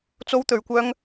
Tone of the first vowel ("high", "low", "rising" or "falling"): high